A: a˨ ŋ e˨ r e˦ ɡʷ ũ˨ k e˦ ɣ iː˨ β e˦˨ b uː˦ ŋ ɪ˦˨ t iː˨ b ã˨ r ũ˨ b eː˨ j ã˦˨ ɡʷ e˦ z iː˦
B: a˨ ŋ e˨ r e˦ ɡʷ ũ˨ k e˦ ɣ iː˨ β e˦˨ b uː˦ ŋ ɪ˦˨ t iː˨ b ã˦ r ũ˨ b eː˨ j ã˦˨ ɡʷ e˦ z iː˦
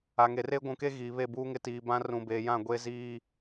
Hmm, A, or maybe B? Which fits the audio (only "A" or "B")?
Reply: B